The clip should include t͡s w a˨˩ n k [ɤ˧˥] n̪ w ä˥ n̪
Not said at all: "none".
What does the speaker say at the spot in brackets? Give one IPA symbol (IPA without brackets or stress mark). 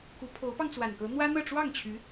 ɤ˧˥